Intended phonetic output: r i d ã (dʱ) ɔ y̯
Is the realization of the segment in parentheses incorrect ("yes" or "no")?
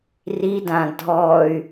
no